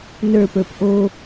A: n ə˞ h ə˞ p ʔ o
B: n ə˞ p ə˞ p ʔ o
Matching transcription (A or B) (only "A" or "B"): B